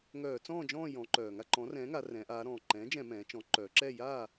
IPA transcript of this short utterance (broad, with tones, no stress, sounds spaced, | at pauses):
ŋ œː˧˩˧ t͡s ɔ̃ː˥˨ d͡ʒ ɔ̃ː˥˨ j ɔ̃˩˧ ǃ œː˩ ŋ a˥˨ ǃ ɔ̃˩˥ r ɛ̃ː˩˥ ŋ a˩˧ r ɛ̃˩˧ ʔ aː˩˧ ɾ ɔ̃ː˩ ǃ ɛ̃ː˩˥ d͡ʒ ɛ̃˧˩˧ m ɛ̃ː˩˧ t͡ʃ ɔ̃˩˥ ǃ œː˩˧ ǁ ɛ˥˨ j aː˥˨